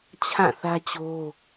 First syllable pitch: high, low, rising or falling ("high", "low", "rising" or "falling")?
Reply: falling